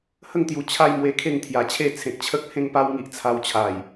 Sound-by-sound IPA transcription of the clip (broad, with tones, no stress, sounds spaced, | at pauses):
h ə˥˧ ŋ t̪ j u˨˩ t͡ɕʰ a˦ j m w e˧ kʰ e˥˧ ŋ t̪ʰ j a˨˩ t͡ɕʰ e˥˧ t͡sʰ ẽ˨ k̚ t͡ɕʰ ə˦ k̚ h ẽ˦ ŋ p a˦ w ŋ i˦ ʔ t͡sʰ a˧ w t͡ɕʰ a˨˩ j